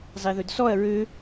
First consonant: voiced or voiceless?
voiced